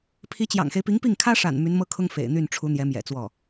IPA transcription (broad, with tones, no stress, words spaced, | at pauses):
pʰi˧˥t͡ɕjɑ̰˨˩ŋxe˦ɪ̯pi˧˥ŋ pi˥˩ŋkʰä˥ʂa̰˨˩n my˧˥nmɤ˥kʰʊ˥ŋ fḛ˨˩ɪ̯n̪y˥˩nʈ͡ʂʰu˧˥ n̪jɛ˧˥mjɛ̰˨˩t͡swɔ˥˩